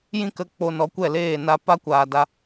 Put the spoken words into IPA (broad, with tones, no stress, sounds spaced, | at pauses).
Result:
j ĩ˦ k ə˧ k͡p o˧ n ɔ˨˦ kʷ ɛ˦˨ l eː˦˨ n a˧ p a˦ kʷ aː˨ d a˧